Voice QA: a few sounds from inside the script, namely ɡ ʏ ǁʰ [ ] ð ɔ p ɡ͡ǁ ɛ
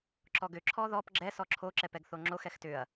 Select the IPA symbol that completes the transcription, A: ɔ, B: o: A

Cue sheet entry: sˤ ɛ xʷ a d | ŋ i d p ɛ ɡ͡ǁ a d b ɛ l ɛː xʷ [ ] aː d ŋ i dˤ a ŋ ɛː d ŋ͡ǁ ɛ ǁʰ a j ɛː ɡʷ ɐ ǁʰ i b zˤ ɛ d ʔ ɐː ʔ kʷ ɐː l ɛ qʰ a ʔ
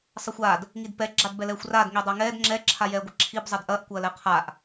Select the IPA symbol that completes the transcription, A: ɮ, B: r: B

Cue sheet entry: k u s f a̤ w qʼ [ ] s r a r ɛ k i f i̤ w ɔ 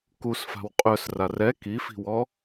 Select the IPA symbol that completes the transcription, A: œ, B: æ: A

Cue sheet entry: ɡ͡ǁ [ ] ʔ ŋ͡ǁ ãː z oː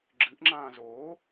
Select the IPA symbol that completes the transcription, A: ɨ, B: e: A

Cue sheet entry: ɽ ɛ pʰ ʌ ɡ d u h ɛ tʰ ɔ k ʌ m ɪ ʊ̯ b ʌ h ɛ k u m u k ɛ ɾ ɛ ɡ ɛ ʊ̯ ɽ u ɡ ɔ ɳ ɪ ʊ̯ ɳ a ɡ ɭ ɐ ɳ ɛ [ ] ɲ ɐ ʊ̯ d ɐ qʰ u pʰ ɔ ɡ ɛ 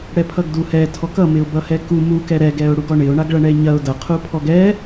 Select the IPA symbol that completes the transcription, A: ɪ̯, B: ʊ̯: A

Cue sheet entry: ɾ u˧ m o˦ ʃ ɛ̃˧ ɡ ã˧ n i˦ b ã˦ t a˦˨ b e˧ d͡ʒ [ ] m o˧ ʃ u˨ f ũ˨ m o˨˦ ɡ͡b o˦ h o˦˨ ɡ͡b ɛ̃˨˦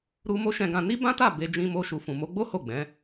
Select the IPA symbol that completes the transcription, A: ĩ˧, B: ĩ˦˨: A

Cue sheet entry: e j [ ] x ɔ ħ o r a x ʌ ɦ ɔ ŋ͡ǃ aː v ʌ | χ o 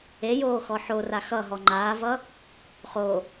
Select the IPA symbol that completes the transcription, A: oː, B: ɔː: A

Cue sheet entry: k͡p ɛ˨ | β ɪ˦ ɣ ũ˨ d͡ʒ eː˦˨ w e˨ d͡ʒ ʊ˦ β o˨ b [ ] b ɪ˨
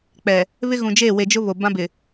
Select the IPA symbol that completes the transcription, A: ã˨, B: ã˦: B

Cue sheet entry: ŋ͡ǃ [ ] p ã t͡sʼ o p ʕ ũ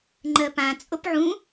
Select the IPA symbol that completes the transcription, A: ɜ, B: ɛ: A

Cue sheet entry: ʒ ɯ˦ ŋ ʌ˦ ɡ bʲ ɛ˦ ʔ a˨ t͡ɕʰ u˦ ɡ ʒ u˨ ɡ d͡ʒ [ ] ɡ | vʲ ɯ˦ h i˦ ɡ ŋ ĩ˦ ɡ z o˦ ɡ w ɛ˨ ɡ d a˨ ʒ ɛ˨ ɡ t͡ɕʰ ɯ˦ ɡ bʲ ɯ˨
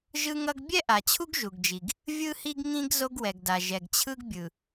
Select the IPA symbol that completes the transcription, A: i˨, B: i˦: A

